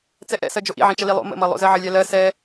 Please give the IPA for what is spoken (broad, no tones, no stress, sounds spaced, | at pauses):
t͡s ɛ ʔ ɛ̰ s ɜ d͡ʒ o ʔ ḭ ʕ ĩ t͡ʃ ə l i lˠ o̰ m ə̰ m ʌ lˠ o̰ z ɜ ʕ ə lʲ ɛ l ɜ s ɛ